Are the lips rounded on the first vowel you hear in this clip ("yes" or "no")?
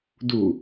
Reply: yes